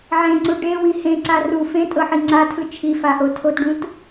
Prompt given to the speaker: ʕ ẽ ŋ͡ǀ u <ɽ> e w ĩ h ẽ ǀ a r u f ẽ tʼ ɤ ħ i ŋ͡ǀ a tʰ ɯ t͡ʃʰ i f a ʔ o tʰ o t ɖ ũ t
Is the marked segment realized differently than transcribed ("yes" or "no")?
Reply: yes